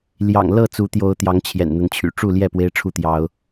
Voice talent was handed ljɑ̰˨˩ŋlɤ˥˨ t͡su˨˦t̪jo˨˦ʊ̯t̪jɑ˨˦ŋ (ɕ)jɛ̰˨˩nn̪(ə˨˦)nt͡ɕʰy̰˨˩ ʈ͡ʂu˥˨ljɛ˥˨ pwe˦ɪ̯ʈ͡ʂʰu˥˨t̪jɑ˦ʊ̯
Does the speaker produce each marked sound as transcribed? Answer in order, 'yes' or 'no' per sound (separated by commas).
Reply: no, yes